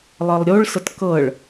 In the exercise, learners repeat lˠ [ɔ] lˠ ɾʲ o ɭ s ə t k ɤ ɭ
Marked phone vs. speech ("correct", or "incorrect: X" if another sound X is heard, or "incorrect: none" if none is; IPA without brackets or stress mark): incorrect: ɤ